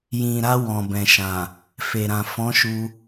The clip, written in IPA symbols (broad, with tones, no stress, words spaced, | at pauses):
jĩ˨ɾa˧ wɔ̃˨bɛ̃˨ʃã˨ | fe˨ɾã˨ fɔ̃˨˦ʃu˧